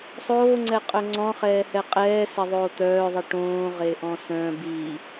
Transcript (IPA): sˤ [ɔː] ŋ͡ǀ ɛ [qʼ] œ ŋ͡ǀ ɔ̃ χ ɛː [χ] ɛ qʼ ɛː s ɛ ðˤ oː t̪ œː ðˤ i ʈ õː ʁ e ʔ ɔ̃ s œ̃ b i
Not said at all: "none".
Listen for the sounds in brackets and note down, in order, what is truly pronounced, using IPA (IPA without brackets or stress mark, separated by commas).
oː, qʼ, h